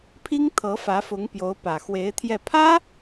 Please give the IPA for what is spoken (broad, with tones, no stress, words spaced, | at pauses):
pʰi˥ŋt̪ʰɤ˧˥ fä˧˥fʊ˧˥ŋpjo˧˥ʊ̯ pä˨˩xwe˧˥ɪ̯t̪ʰjɛ˥˩ pʰä˥